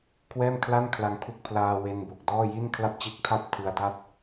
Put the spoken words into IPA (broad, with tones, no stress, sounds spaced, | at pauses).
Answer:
kʰ w ɛː˥˩ m kʰ l a˥˩ n kʰ l a˧ ŋ kʰ u˥˩ k̚ pʰ l aː˧ w e˧ n b o˨˩ k̚ d ɔː˥˩ j i˥˩ n kʰ l a˥˩ p̚ t͡ɕ e˦˥ k̚ tʰ a˥˩ p̚ tʰ ɯ˦˥ a̯ d a˥˩ t̚